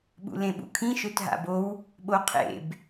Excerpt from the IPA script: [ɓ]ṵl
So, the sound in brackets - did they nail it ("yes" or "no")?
yes